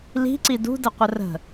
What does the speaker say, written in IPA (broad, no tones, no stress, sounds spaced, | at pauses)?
l i̤ ǀ i d ṳ d ə qʷ ə r ə̤